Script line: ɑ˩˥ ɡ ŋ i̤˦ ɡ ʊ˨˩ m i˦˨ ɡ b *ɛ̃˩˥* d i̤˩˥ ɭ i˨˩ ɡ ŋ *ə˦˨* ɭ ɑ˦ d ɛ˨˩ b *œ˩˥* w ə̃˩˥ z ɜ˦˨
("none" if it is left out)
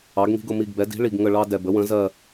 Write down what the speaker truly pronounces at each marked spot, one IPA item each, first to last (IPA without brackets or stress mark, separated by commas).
ɛ˩˥, ə˦˨, ə˩˥